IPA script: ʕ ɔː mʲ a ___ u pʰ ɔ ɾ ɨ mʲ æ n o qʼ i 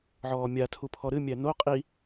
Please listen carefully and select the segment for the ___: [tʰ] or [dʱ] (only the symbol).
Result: tʰ